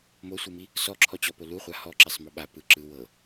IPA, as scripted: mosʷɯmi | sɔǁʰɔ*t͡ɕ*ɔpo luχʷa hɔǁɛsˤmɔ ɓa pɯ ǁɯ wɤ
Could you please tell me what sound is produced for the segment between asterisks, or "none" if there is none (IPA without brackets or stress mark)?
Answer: t͡ɕ